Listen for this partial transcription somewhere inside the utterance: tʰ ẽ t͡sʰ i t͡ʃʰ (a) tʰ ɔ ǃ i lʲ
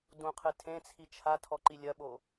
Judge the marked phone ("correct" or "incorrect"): correct